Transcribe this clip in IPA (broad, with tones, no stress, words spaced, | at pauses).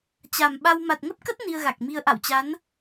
t͡ɕa˨˩mɓa˧w ma˨˩t̚ŋə˦˥p̚kə˦˥t̚ ni˧ə̯ɣa˨˩k̚mi˧ə̯ ʔa̰˧˨wt͡ɕa˨˦n